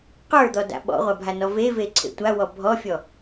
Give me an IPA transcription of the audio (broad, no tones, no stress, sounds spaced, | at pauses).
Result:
q ə˞ d̪ ɔ d a̰ ɓ ɔ̰ ʁʷ a bʱ a n ɔ v e v e ǀʰ ḛ tʷ a w ɔ bʱ ɔ fʲ ɔ